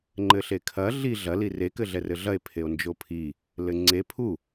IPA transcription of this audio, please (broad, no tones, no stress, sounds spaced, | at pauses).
ŋ͡ǃ ɘ ɬ e kʰ ɐ ɮ i ɮ ɐ l i r e k ɘ ɮ ɛ r ɘ ɮ ɐ e̯ pʰ e o̯ n d͡ʒ o pʰ i | l ɘ ŋ͡ǀ e pʰ u